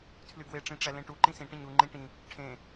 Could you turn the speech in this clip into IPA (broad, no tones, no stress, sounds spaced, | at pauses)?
tʰ l y ɡ w e ʈ͡ʂ ĩ ʈ͡ʂ æ l ẽ ʈ u ǃ ĩ s ĩ ʈ ĩ ɲ u ŋ͡ǃ ĩ ʈ ĩ | ʈʰ ẽ